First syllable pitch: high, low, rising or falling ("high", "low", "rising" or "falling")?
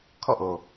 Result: falling